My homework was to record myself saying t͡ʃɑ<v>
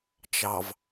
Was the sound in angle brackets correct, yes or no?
yes